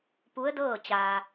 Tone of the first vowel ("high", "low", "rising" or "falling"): rising